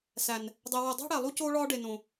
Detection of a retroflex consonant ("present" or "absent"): present